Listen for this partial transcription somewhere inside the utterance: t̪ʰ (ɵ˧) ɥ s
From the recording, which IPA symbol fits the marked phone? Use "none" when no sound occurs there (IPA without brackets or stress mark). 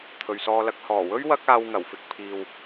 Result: ɵ˨